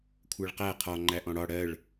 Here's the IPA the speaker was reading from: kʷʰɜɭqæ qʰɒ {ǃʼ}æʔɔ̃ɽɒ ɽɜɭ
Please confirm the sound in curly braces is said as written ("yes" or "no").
no